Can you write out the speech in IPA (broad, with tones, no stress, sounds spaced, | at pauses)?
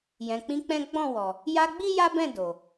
j ɛ̃˨ k͡p ĩ˧ k͡p ɛ̃˦ ɡ͡b ɔ̃˦˨ w ɔ˨ | j a˧ ɡ͡b i˦ j a˦ b ɛ̃˦˨ d o˨